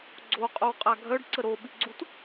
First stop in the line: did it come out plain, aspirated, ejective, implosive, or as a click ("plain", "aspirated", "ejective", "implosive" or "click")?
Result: click